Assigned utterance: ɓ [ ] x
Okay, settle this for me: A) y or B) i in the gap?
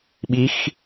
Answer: B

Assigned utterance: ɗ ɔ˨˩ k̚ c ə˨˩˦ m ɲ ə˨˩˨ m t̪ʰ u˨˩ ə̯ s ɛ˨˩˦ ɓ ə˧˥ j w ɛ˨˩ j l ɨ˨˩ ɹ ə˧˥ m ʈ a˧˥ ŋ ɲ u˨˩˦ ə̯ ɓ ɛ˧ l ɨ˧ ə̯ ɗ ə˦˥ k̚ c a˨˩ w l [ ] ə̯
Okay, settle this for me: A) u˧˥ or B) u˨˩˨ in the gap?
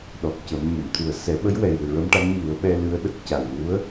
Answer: A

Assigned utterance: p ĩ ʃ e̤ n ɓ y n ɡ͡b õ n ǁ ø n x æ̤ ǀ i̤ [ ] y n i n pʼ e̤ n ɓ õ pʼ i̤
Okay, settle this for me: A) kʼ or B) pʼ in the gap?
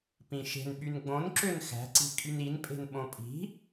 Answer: A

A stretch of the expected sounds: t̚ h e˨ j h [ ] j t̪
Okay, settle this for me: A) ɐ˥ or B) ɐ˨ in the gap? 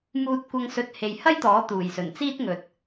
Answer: A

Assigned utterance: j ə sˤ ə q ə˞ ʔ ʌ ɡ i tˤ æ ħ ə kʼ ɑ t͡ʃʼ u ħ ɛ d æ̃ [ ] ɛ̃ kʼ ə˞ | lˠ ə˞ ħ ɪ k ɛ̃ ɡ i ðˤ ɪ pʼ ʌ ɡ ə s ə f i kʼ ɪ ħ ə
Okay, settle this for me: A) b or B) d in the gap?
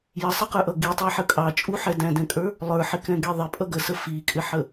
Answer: B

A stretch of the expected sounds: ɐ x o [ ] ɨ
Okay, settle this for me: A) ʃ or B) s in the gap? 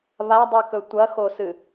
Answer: B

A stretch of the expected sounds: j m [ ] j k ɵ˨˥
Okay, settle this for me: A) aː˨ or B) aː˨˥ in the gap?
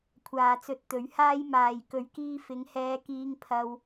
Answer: A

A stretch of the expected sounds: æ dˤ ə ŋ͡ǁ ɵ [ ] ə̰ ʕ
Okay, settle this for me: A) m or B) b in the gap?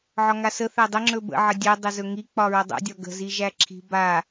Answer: B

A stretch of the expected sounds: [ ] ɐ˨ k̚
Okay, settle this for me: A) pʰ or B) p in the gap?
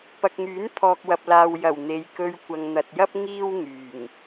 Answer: B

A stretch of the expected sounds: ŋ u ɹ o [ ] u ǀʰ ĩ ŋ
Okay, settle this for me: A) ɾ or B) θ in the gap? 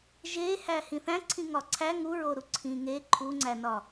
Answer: A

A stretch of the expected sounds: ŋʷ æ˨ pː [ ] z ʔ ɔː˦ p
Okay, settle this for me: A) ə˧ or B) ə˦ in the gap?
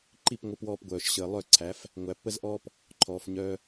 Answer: B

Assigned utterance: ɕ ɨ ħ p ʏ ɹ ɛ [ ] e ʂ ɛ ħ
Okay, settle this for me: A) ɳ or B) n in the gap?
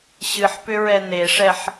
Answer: B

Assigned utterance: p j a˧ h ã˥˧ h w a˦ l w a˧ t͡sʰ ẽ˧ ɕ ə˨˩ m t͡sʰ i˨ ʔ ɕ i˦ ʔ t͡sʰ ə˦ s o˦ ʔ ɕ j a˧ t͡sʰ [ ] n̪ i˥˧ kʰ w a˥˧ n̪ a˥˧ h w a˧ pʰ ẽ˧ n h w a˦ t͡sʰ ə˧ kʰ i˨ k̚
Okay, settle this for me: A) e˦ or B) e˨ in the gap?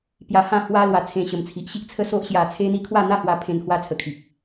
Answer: A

